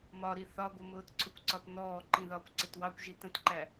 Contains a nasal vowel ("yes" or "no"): yes